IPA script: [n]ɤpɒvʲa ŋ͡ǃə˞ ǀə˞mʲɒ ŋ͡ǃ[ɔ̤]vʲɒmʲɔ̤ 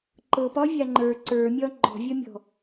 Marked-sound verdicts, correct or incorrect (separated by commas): incorrect, correct